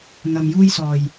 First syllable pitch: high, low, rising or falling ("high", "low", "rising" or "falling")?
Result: low